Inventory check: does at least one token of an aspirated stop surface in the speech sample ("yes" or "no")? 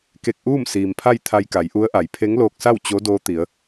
yes